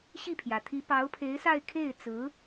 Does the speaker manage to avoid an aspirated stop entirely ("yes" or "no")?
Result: no